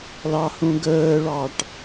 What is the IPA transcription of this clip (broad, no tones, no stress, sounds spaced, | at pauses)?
l ɑ h ũ ɡ əː ɭ ɑ ʈ